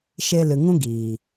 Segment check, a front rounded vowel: absent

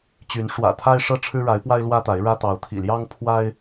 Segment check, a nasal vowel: absent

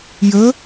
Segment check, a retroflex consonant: absent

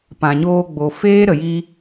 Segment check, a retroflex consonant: absent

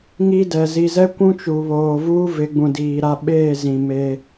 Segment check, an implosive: present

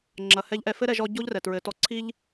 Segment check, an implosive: absent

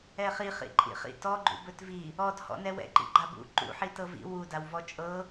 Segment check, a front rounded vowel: absent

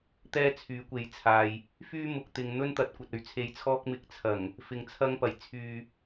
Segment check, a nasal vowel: absent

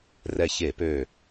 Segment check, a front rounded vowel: present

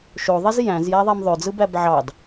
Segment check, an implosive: absent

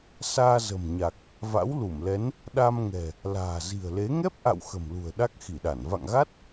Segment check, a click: absent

